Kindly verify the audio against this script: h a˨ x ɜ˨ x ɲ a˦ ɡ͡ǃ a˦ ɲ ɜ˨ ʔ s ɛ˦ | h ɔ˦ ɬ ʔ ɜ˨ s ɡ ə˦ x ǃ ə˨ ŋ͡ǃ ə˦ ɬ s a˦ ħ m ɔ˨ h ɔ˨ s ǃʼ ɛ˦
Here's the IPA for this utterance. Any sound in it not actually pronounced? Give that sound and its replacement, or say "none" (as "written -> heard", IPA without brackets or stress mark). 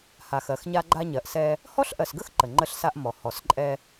ħ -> ʔ